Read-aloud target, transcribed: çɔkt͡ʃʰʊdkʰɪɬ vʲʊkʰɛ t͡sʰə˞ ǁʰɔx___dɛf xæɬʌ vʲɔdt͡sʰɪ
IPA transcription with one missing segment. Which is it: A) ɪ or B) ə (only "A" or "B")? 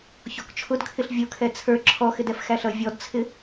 A